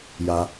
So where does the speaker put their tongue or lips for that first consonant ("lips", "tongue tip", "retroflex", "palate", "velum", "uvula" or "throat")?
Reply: palate